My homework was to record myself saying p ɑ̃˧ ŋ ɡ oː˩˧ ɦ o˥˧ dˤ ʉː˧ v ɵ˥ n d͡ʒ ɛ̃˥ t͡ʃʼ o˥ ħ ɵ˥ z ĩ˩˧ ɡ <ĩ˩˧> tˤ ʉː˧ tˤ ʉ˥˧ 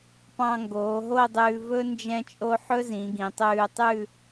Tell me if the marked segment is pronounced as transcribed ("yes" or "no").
yes